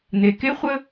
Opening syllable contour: low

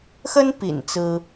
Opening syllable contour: high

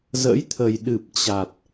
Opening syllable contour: rising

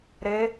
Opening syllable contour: rising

